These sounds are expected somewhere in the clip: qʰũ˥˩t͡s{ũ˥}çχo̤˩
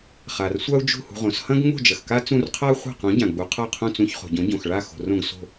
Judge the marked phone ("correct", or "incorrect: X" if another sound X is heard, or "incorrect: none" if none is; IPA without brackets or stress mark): incorrect: ũ˧